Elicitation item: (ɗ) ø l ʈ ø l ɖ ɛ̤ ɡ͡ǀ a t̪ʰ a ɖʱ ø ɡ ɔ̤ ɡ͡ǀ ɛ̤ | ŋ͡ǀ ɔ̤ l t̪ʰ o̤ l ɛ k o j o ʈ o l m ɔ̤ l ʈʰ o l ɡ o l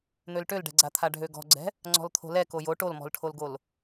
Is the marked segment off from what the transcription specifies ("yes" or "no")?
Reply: yes